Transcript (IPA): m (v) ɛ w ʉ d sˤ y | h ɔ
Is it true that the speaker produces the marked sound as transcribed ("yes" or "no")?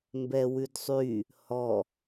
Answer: no